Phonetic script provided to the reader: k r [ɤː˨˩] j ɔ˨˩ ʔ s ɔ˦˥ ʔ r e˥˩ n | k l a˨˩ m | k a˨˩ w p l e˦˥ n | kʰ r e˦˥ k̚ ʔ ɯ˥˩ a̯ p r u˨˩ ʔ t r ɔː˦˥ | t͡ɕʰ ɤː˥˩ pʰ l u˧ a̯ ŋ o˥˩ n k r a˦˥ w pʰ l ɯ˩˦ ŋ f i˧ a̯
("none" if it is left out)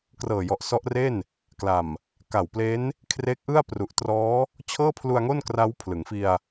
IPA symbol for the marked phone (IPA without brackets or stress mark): ɤː˨˩